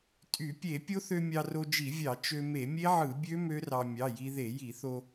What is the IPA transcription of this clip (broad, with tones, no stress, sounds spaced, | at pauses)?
tʼ y˧˩˧ pʲ e˧˩˧ pʲ o˦˥ θ ø˧ mʲ ɑ˧ r o˧ d͡ʒ i˧˩˧ vʲ ɑ˧˩˧ t͡ʃ ø˧ m e˧˩˧ mʲ e˦˥ ʕ ɯ˧˩˧ bʲ ø˦˥ m ø˦˥ r ɑ˧ mʲ ɑ˩˧˩ j i˧ ð e˧˩˧ j i˧˩˧ θ o˧